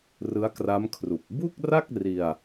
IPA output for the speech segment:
r ɯ˦˥ a̯ k r a˦˥ m kʰ r u˨˩ k̚ b u˥˩ k̚ r a˥˩ k̚ r i˧ a̯

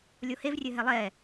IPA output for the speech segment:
lʲ o h e v rʲ ɘ ɦ ɛ lˠ ɛ

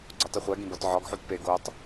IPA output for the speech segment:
ɡ͡ǀ o tˤ i χʷ æ ɡ ĩ b ɒ t ʕ ɒ ɡ ħ u t p e ɡ o tˤ

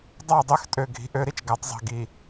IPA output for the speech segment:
dˤ ɑ˦˨ dˤ ø˦ x tʼ ø˨ ɡʱ i̤˨ ʔ ø˦ ɾ i˨ t͡ʃ ɡ æ˨˦ tˤ zˤ i̤˨ ɡ i˨

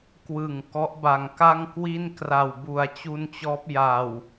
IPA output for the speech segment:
k w ɯ˨˩ ŋ k ɔ˦˥ ʔ b a˨˩ ŋ k a˥˩ ŋ k w i˥˩ n k r a˨˩ w b u˨˩ a̯ t͡ɕ u˧ n t͡ɕ ɔː˦˥ p̚ j a˨˩ w

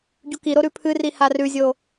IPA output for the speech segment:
ɟ u k i ɾ o ɾ ʉ pʰ ɨ r i h a r ʉ zʲ o

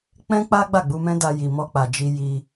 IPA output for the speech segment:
k͡p ɛ̃˦ k͡p a˦ ɡ͡b a˦˨ ɡ͡b u˧ m ɛ̃˦ d a˧ j i˨ m ɔ˧ k͡p a˨ d͡ʒ i˧ j i˧

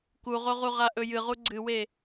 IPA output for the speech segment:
k u ʁ o ʁ u ʁ a ʔ ɵ j ɨ ʁ u ɡ͡ǀ ɨ w e

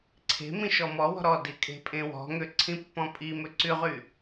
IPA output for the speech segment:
ǀʰ e̤ m ĩ ʃ ɔ m ɔ w ɔ̤ ɾ ɔ d i kʼ e̤ pʼ ẽ w ɔ̤ ŋ ø ǀʰ ĩ pː ɔ̃ pʼ i m ø ǀ y ʁ y

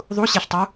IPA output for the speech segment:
ðˤ u ɕ e ɬ tˤ u

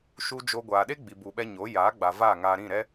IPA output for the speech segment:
ʃ u˦ d͡ʒ o˧ ɡʷ aː˨ ɗ e˦ ɡ͡b i˨ b u˨ ɓ ɛ˧ ɲ o˨˦ j aː˨˦ ɡ͡b a˨ v aː˦˨ ŋ aː˧ ɾ ĩ˦˨ ɾ ɛ˦

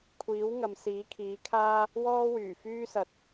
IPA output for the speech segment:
kʷʰ iː˨˥ w ŋ ɐ˨ m s iː˨˥ kʰ iː˨˥ kʰ aː˥ | w ɔː˥ w yː˨˩ f yː˥ s ɐ˨ t̚

